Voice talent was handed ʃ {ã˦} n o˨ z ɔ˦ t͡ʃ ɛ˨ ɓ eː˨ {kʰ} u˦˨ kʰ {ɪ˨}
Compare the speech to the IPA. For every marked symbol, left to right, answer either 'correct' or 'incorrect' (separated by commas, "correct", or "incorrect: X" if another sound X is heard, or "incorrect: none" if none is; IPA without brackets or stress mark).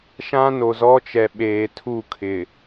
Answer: correct, incorrect: tʰ, correct